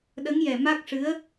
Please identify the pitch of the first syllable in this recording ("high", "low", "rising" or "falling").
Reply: rising